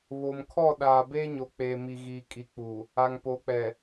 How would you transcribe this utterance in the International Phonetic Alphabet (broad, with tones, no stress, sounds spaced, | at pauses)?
β o˨ m kʰ ɔ˦˨ ɗ aː˨ b eː˦ ɲ o˨ k͡p eː˨ m i˨ ɣ iː˨ kʼ i˨ k͡p u˨ | a˨ ŋ p o˨˦ k͡p ɛ˨